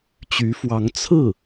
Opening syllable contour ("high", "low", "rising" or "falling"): rising